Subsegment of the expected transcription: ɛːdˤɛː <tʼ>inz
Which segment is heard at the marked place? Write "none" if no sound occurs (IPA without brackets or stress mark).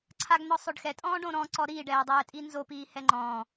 tʼ